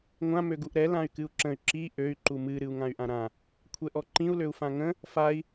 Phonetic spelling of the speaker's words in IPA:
ŋʷ ã m ø ɡ u ʔ ɾ ɛ l ã y̯ k ɨ u̯ ǁ ə̃ y̯ ǁ i ʔ ø y̯ ǃ u m ɨ ɾ ɨ u̯ ŋ ã y̯ ʔ ã ɾ ã | kʷʰ ɛ ʔ ɔ ǃ ĩ u̯ l ø u̯ f ã ŋ ə̃ | f a i̯

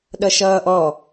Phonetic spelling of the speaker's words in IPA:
ɗ ʌ ʃ ʌː ʔ ɔ

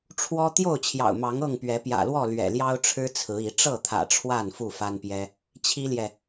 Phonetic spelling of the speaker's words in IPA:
ʈ͡ʂʰ w ɔ˦ t̪ j o˥˨ ʊ̯ t͡ɕʰ j ɑ̰˨˩ ʊ̯ m ɑ˨˦ ŋ ɤ˥˨ ŋ p ɥ ɛ˨˦ p j ä̰˨˩ l w ɔ˥˨ l ɥ ɛ̰˨˩ l j ɑ˦ ʊ̯ ʈ͡ʂʰ ɻ̩˦ t͡sʰ ɹ̩˨˦ i˨˦ ʈ͡ʂ ɤ˥˨ t̪ʰ ä̰˨˩ ʈ͡ʂʰ w a˥˨ n f u˥˨ f a˦ n p j ɛ˦ | t͡ɕʰ i˦ l j ɛ˨

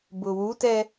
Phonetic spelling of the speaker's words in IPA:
b ʊ w u t ɛ

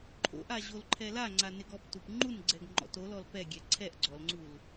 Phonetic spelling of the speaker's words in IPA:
ǃʰ o̰ ʔ a ʑ o l ǃʰ ɛ l a ŋ͡ǀ a n ɪ ɡ ɔ p t u p ŋ͡ǃ u n ɡ͡ǀ ɛ ɡ ŋ͡ǃ ɔ̰ t o l ɔ l p ɛ ɡʲ ɛ ǀʰ ɛ ʔ ɡ͡ǀ ɔ l ŋ͡ǀ u l

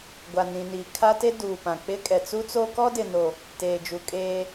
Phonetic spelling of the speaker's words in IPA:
ɡʷ a˨ n ĩ˨ n iː˨ kʰ a˦ t e˦ d uː˨ p ã˨ k͡p ɪ˦ kʼ ɛ˨ t͡s u˦ t͡s o˦ k ɔ˦ d ɪ˨ n o˨ | t eː˨ d͡ʒ u˨ kʼ eː˦

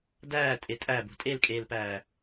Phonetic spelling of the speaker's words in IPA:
d æː tʼ e tʼ æ b o̤ tʼ e l kʼ eː l p æː

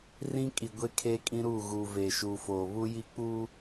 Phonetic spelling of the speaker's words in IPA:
r ĩ˦ kʼ i˨ ɡʷ e˦ kʰ eː˦ kʼ ĩ˦ ɾ uː˦˨ ɣ uː˨ v eː˨ ʃ uː˨ f oː˨ β u˦ j i˦ k͡p u˦

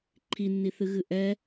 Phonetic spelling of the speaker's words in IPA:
ǃʰ i nː i θ ɨ ɣ ɨ ʔ ɛ

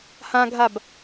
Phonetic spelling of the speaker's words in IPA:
h ã ɡʱ a b

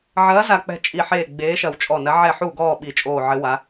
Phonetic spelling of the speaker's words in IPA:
ʕ ɐː˨˥ z a˧˩ k͡p ɛ̤˧˩ t͡ʃʼ i˧˩ ħ eː˧˩ ɡ͡b eː˨˥ ʃ ɐ˧˩ w t͡ʃʼ ɔ˧˩ n ɐ˨˥ ʕ ɛ˧˩ ħ u˧˩ ɡ ɔː˧˩ ɓ i˧˩ t͡ʃʼ oː˧˩ ʕ ɘ˨˥ w a˨˥

